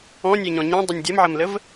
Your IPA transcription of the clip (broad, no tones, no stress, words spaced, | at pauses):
ɔ̃nʲɛɲɔ̃ ɲẽdˤɵnʲ dʲɐmʕɐmləv